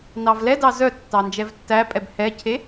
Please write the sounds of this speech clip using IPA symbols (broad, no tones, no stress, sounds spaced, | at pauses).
n ɑ v l ɛ d ɑ z œ tː ɑ n d͡ʒ ɛ v tː æ pʼ ɛ b h ɛ cʰ e